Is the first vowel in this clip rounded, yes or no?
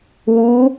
yes